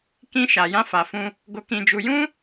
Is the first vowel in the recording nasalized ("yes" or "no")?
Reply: yes